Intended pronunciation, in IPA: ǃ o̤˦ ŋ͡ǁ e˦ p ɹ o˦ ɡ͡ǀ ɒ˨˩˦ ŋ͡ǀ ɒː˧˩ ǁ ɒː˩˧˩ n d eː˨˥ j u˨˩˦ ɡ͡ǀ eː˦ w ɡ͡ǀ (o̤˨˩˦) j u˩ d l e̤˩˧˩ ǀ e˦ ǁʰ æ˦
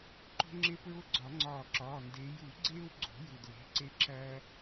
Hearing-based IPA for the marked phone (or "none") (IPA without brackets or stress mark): o̤˨˩˦